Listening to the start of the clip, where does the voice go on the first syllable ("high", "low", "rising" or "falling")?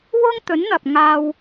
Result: high